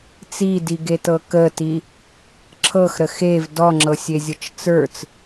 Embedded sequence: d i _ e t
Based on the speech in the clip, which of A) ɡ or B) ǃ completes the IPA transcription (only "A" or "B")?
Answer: A